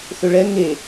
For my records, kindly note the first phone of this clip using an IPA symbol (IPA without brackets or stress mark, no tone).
θ